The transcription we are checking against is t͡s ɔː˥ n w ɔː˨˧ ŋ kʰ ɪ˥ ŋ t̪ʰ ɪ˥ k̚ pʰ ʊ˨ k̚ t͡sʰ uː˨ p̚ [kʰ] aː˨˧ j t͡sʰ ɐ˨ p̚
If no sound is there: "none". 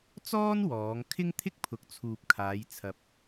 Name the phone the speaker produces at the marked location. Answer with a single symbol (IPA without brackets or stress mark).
kʰ